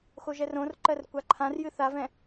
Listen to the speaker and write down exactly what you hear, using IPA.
xoʒɛrõrǃɜr kʷaǃʰãrjɨ θavɛ̃

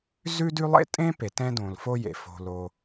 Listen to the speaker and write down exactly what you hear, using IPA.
zʉ˥dʉ˥ lˠḛ˥tʼẽ˥pe˩ tɛ̃˥dõ˩lfo˥jḛ˩ fo̤˩lo˩

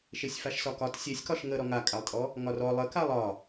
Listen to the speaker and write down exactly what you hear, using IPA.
ʃesʲfaʃsɒkɒt sʲesʲkɒʃ ŋə ɾɔŋakʼalˠtʼɔ | ŋɒrɔ lˠəkalˠ ɒ

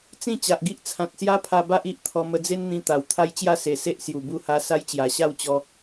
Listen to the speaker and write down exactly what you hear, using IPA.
t͡sĩ˥˧ t͡ɕa˨ʔɡi˦ʔ t͡sʰã˨t̚sja˦pʰa˧ ba˦ʔ i˦ʔt̪ʰɔ˧ mə˧d͡ze˦nn̪ĩ˧ t̪a˨˩w t̪ʰa˦jt͡ɕja˥˧ se˨˩ se˦ʔsju˨˩ bu˥˧ha˦ sa˦jt͡ɕja˨˩ɕa˥˧wt͡ɕɔ˧

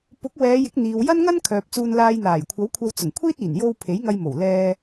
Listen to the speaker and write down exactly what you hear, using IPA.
pʊ˨˥k̚ wɛː˨˧ jɪ˨˥k̚n̪iː˨w jɐ˥nŋɐ˥n kʰœː˨p̚t͡suː˧nlaː˧jn̪aː˨˩j kʷʰɐ˨˥wkʷʰɐ˧wt͡sʊ˨˩ŋ kʷʰiː˥t̚iː˨˩n jo˧w pʰe˨˥jŋɐ˧jmo˨˩w lɛː˧

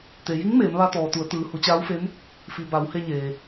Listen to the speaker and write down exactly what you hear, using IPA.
t̪e˩ji˧˥ŋ meː˩˧mʋa˧t̪ɔː˩t̪u˩˧ə̯ t̪ɯː˩hu˩˧t͡ɕaː˧˥wfe˧˥n | fi˩ ba˩˧whe˧ɲeː˩

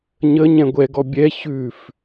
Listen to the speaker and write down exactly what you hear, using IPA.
ɲə ɲɛ̃ɡʷɛɡɔ bʲɛ çʉf

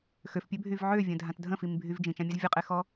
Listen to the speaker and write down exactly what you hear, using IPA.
xøfpʲøbʱyv ʕøvʲə̃dʱãt dʱə̃fimbʱyv d͡ʒĩt͡ʃãmʲɛz vʲəqʼexɔ

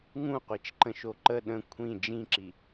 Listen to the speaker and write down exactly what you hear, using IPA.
ŋũqʷit͡ʃǃə̃ʃo ǃə ɗə̃ kʷʰĩ d͡ʒĩǁi

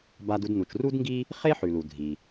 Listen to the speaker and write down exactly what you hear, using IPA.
ba˧du˧d nu˩t͡ʃru˥dŋɡi˥ | χe˥ħʉ˩lu˩ dʱi˩

